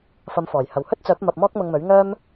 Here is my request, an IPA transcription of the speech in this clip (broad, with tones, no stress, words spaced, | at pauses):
fɐ˨˧mfɔː˨˩j hɐ˨˩whɵ˥t̚t͡sœː˨˥p̚ mɐ˧p̚mɔː˥k̚mʊ˧ŋmɵ˨˥ɥ ŋœː˥m